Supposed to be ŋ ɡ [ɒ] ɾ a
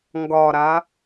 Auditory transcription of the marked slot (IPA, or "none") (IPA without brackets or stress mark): ɒ